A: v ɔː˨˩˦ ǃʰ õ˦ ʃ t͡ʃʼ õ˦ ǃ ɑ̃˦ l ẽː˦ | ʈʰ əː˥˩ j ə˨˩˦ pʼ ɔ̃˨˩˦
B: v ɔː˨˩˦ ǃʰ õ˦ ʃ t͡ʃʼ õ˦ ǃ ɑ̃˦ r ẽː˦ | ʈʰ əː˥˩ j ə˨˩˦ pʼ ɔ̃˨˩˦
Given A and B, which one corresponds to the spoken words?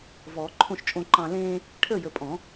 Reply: A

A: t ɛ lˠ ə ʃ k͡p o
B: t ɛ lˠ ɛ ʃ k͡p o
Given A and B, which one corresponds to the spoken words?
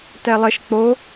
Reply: A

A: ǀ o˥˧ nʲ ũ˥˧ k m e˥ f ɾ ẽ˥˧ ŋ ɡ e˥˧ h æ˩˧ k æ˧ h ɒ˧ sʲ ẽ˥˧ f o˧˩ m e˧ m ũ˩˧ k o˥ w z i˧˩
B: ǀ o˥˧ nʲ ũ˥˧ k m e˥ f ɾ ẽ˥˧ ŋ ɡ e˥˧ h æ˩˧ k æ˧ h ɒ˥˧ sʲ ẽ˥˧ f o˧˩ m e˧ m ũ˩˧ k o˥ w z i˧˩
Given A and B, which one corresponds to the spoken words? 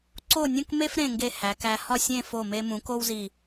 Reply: B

